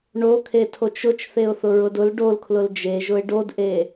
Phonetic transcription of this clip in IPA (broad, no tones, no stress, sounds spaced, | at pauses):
ɳ o kʰ e tʰ o t͡ʃ ʊ t͡ʃ θ e ʊ̯ θ ʊ ɹ ʊ d ʊ l ɖ o l kʰ l ʊ l d͡ʒ e ʒ ʊ ɪ̯ ɖ o d ʔ e